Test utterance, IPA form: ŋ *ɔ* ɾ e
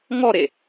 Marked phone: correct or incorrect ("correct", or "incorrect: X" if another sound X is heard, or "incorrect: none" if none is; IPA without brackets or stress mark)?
correct